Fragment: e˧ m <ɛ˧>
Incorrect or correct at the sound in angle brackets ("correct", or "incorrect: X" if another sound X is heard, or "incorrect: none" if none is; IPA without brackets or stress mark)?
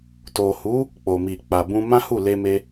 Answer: incorrect: e˧